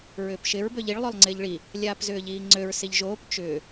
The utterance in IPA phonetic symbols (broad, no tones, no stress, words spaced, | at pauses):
ɹʏːpʃɪɹ bøʎiɭ lˠølˠŋ͡ǀɪːʎɭi | lʲaːpzʏːʎiːŋ͡ǀøɹ siʎʒoːp t͡ʃʏː